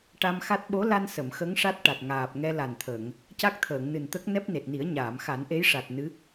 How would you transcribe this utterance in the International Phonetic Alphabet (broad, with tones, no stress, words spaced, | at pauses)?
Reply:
ʈa˧mxa˦˥t̚ ɓo˧˥la˧n sə˨˩˨mxə˧˥ŋ ʂa˦˥t̚ʈa˨˩t̚ ŋaː˨˩p̚ŋɛ˧ la˨˩nt̪ʰə˨˩˨ŋ | ca˦˥k̚t̪ʰəː˨˩˨ŋnɨ˨˩nt̪ə˦˥k̚ nɛ˦˥p̚ne˨˩t̚ni˨˩˦ə̯ ɲaː˨˩˨mxa˨˩˦nʔe˧˥jʂa˨˩t̚ nɨ˧˥